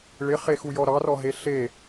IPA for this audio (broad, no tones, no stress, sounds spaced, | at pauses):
ɭ ɪ χ e x u j ɔ ɾ ɑ r ɔ ɦ e ɬ e